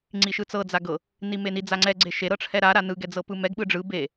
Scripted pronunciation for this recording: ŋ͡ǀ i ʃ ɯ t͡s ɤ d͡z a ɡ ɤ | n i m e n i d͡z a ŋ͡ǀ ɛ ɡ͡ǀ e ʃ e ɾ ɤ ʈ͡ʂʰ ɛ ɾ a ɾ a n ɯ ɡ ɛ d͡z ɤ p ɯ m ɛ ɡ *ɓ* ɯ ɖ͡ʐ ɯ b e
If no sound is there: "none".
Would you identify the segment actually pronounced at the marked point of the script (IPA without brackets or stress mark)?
ɓ